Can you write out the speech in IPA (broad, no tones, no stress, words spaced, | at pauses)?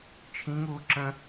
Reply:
t͡ʃʰĩŋuː ǁə̃